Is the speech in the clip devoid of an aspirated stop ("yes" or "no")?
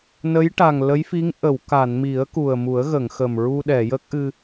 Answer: yes